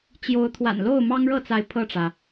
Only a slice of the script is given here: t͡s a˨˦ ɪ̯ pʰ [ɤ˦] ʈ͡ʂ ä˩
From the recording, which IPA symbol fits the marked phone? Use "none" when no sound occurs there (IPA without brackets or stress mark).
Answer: ɤ˥˨